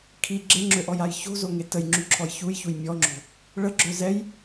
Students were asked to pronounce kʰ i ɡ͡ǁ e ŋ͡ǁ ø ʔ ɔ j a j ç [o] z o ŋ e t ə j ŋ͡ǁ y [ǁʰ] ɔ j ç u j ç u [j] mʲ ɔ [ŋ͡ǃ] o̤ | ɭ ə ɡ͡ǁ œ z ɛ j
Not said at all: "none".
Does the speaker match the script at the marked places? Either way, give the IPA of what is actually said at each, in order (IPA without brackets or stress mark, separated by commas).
o̤, ǁʰ, j, ŋ͡ǁ